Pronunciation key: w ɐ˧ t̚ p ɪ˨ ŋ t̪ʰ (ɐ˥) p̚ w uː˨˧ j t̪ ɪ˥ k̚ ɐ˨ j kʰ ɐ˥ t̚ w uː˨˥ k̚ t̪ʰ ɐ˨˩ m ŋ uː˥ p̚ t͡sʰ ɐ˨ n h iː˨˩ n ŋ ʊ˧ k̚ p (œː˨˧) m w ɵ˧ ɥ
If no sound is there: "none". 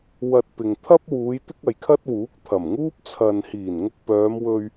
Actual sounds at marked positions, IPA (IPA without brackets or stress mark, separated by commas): ɐ˥, œː˨˧